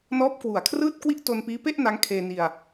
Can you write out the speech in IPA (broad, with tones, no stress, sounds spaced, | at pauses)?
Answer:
n ɔː˦˥ p̚ k w u˨˩ a̯ kʰ r ɯː˥˩ t̚ k w i˥˩ ʔ t o˧ n p iː˦˥ p e˥˩ ʔ n a˦˥ ŋ kʰ eː˧ n i˧ a̯